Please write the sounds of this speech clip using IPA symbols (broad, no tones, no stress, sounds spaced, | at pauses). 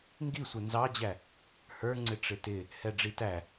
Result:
ŋ ɡ i sʷ ɛ n z ɑ d͡ʑ æ | h ə˞ ŋ͡ǀ ɪ ʈ͡ʂ ɪ t ɪ | h ɛ ɖ͡ʐ i t æ